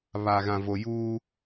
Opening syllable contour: low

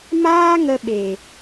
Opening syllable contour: high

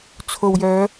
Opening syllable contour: low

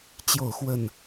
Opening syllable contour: falling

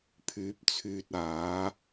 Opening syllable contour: rising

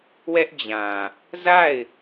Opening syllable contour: high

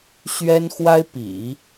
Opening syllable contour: high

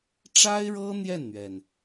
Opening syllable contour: high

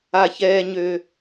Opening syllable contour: low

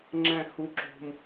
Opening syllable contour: falling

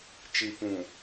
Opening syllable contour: low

